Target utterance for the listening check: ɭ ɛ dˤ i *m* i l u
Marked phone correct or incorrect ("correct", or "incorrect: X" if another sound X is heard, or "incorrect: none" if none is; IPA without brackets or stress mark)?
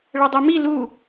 correct